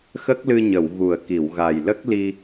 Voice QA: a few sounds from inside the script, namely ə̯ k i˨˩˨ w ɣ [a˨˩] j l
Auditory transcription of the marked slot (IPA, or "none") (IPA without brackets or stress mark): a˨˩